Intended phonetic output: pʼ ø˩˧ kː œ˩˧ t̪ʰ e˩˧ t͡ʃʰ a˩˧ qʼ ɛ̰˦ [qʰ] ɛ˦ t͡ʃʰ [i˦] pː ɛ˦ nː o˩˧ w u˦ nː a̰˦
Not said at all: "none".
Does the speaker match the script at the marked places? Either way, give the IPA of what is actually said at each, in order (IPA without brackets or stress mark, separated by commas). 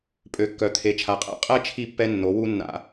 qʼ, i˦